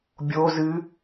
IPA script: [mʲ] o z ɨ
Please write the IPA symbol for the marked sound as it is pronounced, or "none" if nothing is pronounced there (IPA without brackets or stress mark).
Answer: bʲ